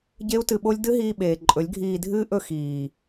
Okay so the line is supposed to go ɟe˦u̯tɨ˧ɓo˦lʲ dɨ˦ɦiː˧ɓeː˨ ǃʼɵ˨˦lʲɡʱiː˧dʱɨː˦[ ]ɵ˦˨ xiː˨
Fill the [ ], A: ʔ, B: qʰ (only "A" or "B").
A